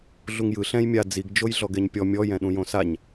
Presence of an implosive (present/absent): present